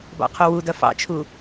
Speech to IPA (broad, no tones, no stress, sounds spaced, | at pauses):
b ɑ̰ qʰ o w u d ɐ f ɑ̰ t͡ʃʰ u